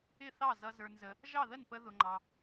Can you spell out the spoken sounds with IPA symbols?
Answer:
ɪ˥˩θɑ˥˩ zʌ˧ zə˞˧nzə˧ | ʒɑ˥˩ðə˥˩npə˧ ðʊ˧ŋ͡ǃɑ˧

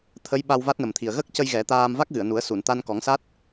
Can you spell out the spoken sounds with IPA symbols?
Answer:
t̪ʰə˧˥j ɓa˧wva˦˥t̚nə˨˩mt̪ʰi˨˩ə̯ ɣə˦˥k̚cə˧j ɣɛ˨˩˦t̪aː˧m va˦˥k̚ɣɨ˨˩˨ə̯nu˨˩˦ə̯ su˨˩˨nt̪a˧nkɔ˨˩˦ŋsa˦˥t̚

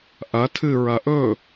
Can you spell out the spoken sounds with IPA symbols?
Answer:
ʔɐ tʰɨ ɹɐʔɵ

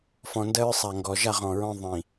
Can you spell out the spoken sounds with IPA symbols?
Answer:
fɔ̃˨ndɜ˦ɹsˤa˨ŋɡɔ˨ ʒa˦˨ʁɔ̃˨ɹɔ̃˦ ðˤĩ˨

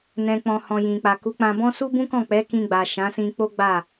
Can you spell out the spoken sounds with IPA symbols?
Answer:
nɛ̃˨k͡pɔ̃˨ hɔ̃˨jĩ˨ k͡pa˨ku˨˦k͡pã˧bɔ̃˦ su˦bũ˦kɔ̃˦˨ k͡pɛ˨˦kĩ˧ɡ͡ba˨ ʃã˨˦sĩ˧ k͡po˦ɡ͡ba˦˨

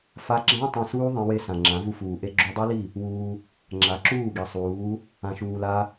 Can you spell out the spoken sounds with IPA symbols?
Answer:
fa˦ ɡ͡ǁã˦ tˤẽ˧suː˦ðˤẽ˧we˧ sã˨ŋ͡ǁã˨˦vu˧fuː˨ ʔe˧ɡ͡ǁu˧dˤe˦li˦˨ | wuː˧ | ŋ͡ǁa˨˦ǁuː˦˨ɡi˨sˤuː˨˦ | ã˧ʃuː˧la˦

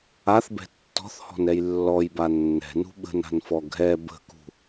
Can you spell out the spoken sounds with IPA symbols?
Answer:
aθbɛ̤ tːɔ̤θhɔ̤nɛj lːɔjba nːɛ̤nṳ ɓə̤na̤nfɔ ɡʱɛ bə̤kṳ

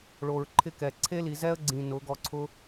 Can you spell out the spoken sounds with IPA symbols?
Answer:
ɭo˨ɹ ǃʰɪ˦kɛ˨ ǀʰe˦li˨zɛ˦ə̯ɡ͡ǀĩ˨ nʊ˨˦ɡɔ˧ǀʰʊ˦

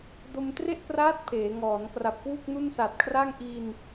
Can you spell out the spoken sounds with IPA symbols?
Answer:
do˧mtre˥˩ʔkraː˦˥t̚ pʰeː˩˦ŋɔː˩˦n kra˨˩p̚kwu˥˩k̚nu˥˩n sa˨˩t̚kʰra˥˩ŋ ʔi˧n

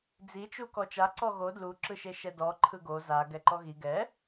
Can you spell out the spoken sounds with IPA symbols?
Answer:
d͡zit͡ʃu kɔt͡ʃa ǀɔɣo dluǁɯʃe ʃɛdɔ ǃʰɯɡo za ɡɛǃɔɣi ɡɛ

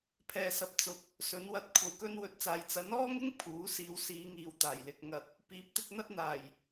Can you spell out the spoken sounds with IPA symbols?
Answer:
pʰɛː˨sɐ˨p̚t͡sʊ˨˥k̚ | sɵ˨˥nwɐ˨˥t̚kʷʰɐ˨w kɵ˧nwɵ˨˥t̚ t͡saː˧j t͡sɐ˨˥nɔː˥ŋɪ˥ŋ pʰuː˨˥siː˨˧w siː˨˧ŋiː˨wt̪aː˨˩jlɪ˨k̚ ŋɐ˨t̚ | piː˨˥p̚t̪ɪ˧k̚n̪ɐ˥t̚n̪aː˨˩j

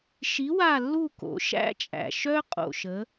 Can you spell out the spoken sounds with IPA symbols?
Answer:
ʃi˨˥wa˦˨lːu˦˨ ko̰˩˧ʃæ̰˦t͡ʃʼæ̰˨˩ ʃœ˦qʼo̰˨˩ʃə˩˧

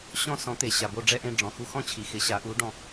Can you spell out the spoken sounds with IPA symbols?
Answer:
ɕɔ̃˥˧sɔ̃˩˥t̪e˩ ɕa˩bo˥˧ ɖ͡ʐɛ˥˧ʔẽ˥˧ ɖ͡ʐɔ̃˩xu˧xɔ̃˥˧t͡ɕʰi˩ xɪ˩˥ɕa˩˥ʔu˩˥ ɖɔ̃˧

